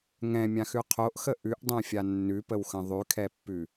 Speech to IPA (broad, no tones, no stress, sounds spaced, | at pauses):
ŋ ɛ̃ mʲ ã x ʉ qʰ o ʔ x ə ʔ ʉ ʔ dˤ ɛ̃ fʲ a nː ʉ p ə w x ə̃ ðˤ ʉ kʰ ɛ pː ʉ